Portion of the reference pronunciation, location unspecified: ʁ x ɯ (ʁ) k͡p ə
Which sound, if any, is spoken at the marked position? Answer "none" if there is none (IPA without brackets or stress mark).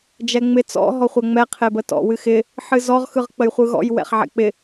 ʁ